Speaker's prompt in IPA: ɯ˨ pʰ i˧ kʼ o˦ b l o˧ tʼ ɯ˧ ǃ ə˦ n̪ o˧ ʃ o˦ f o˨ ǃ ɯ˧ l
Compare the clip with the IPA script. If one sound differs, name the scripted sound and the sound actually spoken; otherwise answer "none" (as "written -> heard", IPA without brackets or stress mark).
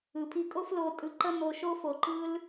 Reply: b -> f